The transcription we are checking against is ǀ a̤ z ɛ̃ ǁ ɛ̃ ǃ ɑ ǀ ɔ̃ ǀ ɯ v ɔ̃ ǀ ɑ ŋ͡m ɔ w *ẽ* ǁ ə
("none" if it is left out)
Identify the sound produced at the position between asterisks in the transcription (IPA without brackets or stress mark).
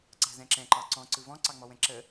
ɛ̃